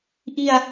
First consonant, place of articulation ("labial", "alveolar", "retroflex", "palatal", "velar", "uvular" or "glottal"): glottal